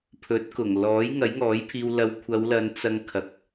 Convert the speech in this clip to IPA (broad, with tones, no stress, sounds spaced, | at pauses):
pʰ ɵ˨˥ t̚ k ʊ˨˩ ŋ l ɔː˨˥ j ŋ ɐ˨˥ j ŋ ɔː˨˥ j pʰ iː˧ w l ɐ˧ w kʷʰ ɐ˨˧ w l ɐ˨˧ n t͡s ɐ˧ ŋ kʰ ɐ˨˥ k̚